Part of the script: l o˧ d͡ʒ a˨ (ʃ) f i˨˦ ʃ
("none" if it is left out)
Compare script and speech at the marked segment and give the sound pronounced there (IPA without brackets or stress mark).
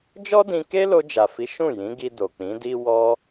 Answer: none